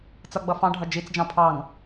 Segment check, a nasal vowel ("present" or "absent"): present